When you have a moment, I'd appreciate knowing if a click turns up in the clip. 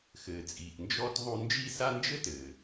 no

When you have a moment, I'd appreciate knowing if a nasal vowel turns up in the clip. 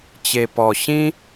yes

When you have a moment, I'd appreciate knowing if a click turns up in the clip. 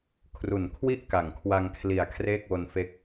no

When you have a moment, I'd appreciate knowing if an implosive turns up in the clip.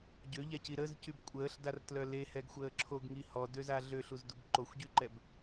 no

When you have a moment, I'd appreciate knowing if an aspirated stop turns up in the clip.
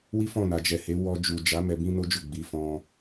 no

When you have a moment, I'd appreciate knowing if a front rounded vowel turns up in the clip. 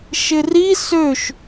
yes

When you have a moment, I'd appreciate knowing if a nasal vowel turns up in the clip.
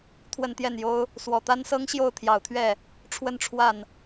no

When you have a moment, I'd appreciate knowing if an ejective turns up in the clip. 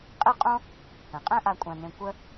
yes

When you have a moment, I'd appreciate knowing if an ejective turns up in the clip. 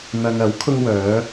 no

